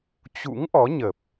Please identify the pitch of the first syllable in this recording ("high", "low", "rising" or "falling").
rising